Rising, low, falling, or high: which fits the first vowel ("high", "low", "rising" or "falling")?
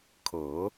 rising